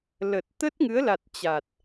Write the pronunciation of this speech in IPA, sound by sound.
l ə˨˩ t̚ t̪ ə˦˥ t̚ ŋ ɨ˨˦ ə̯ l a˨˩ t̚ t͡ɕ a˨˩ t̚

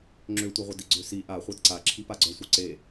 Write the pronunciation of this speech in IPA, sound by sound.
ŋ͡ǁ ø tʷ ɛ ʁʷ œ d i ɡ͡ǀ ø s i ʔ a χʷ ɛ d ǀ a ǁʰ i p a ɡ͡ǀ œ sʷ œ ǀ e

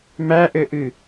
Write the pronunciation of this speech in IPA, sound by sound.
m æ ʔ ɘ ʔ ɨ

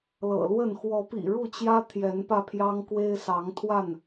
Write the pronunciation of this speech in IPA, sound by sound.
l ɤ̰˨˩ l w ə˥˨ n x w ɔ˨˦ p ḭ˨˩ ɻ u˥˨ t͡ɕ j ä˦ t̪ʰ j ɛ˨˦ n p ä˧ pʰ j ɑ˦ ŋ k w e˦ ɪ̯ s ɑ˨˦ ŋ t̪ʰ w a˥˨ n

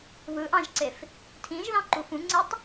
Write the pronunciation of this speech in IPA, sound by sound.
β ɯ ʔ ɑ̃ ʒ ǀ e f | tʰ ĩ ʒ ð ɑ̃ ǃ u f ũ ŋ͡ǀ e tˤ

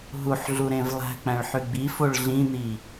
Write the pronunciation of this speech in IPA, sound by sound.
ɦ u ħ ɮ u ɾ ẽ v lˠ æ̤ k͡p æ̃ ɭ ħ y ɡ͡b i f o ɭ ɮ ĩ n̪ i

